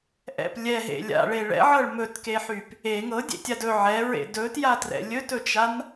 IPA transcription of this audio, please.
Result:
ʔ ɛ̰ p lʲ ɛ ɦ ḛ lʲ a̰ ɭ e ɭ ɛ̰ ʕ ɤ ɭ m ɵ t k e ħ y p | e ŋ ɤ dʲ ḛ tʲ a d ɵ ʕ ɛ ɹ ḛ d ɵ t j a t r ɛ̰ lʲ ɵ t ɵ t͡ʃ a n

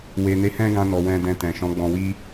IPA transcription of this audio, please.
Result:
w e˨ n e˨˦ h ɛ̃˦ ɡ ã˧ n ɔ˨ w ɛ̃˧ d ɛ̃˧ t ɛ̃˨ ʃ ɔ̃˨˦ ɡ͡b ɔ̃˧ w i˦

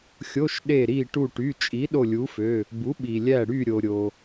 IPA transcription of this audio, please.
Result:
xʲ o˧˥˧ ʃ ɗ e˧˩ ɾ i˧˩ ʈ u˧˩ ʈ y˩˧˩ t͡ʃʼ i˩˥ ɗ o˧˩ lʲ u˩˥ f ø˩˧˩ | b u˩˥ ɓ i˩ lʲ æ˧˩ ɽ y˧˩ ɾʲ o˩ ɾʲ o˩

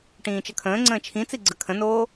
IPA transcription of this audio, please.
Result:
ʈ ĩː t͡ʃ ə kʰ ə̃ː ŋ͡ǀ ə̃ː t͡ʃʰ ĩ t͡s i ɡ͡ǀ ə kʰ ə̃ n oː

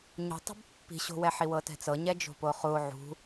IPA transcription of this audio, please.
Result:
ɲ ṳ tˤ ṳ b pː i̤ ɕ o̤ w ɛ ħ i w ɤ t ɛ̤ t͡s ɤ ɲ ɛ d͡ʒ o̤ p o χ u o̯ ʕ ṳ

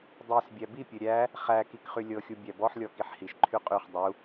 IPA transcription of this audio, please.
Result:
dˤ i s bʲ æ b i pʲ ɘ ɾʲ æ | χ æ k i k χ y lʲ ɤ xʲ u bʲ æ b ɔ ħ lʲ ɔ k i ħ h i ʃ ǃʰ y qʼ y χ dˤ u

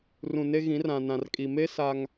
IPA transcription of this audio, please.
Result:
r ũ˨ n e˦ ɣ ĩ˨˦ r ã˨ n ã˨ r kʼ i˨ m e˦ s a˦ ŋ

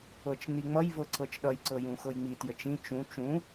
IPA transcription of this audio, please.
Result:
ɤ t͡ʃ n i ŋ͡m ʌ j v ɤ ǀ ɤ t͡ʃ ɗ ʌ j ǀ ɤ j ũ x ɤ j ŋ͡m i t j ə t͡ʃ ĩ t͡ʃ ũ t͡ʃ ũ

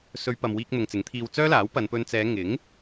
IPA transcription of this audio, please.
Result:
s ɵ˨˧ ɥ p ɐ˨ m w iː˧ k̚ n̪ ʊ˨ ŋ t͡s ɪ˨˥ ŋ t̪ʰ iː˧ w t͡s œː˥ l aː˨˥ w p ɐ˨˧ n p ɵ˧ n t͡s ɛː˨˧ ŋ ɪ˨˥ ŋ

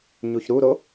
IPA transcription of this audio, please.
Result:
ɲ u ç ɾ u ɾ o

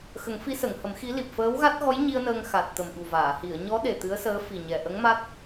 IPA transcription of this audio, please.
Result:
x ə˨˩˦ ŋ f i˧˥ s ə˨˩˨ ŋ h ə˨˩˦ m x i˧˥ l i˨˩ p̚ f əː˧˥ w ɣ a˦˥ t̚ ɣ ɔ˧˥ j ɲ i˧ ə̯ n əː˧ ŋ x a˨˩ t̚ t̪ ə˨˩ m ɓ u˨˩ v aː˨˩˨ h i˨˩˨ ə̯ ɲ ɔ˧˥ ɗ e˨˩ t̪ ɨ˧˥ ə̯ s əː˧˥ f i˨˩ ɲ ɛ˨˩ ʔ ə˧˥ ŋ m a˦˥ t̚

